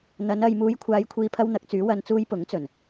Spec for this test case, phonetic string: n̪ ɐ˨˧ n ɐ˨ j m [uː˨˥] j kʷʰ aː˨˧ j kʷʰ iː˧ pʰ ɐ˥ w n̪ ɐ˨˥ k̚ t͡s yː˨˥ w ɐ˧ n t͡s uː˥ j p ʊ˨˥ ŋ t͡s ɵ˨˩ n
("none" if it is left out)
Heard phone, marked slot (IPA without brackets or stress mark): uː˨˧